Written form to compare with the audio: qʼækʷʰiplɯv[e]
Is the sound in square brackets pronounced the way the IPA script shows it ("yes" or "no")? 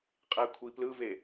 yes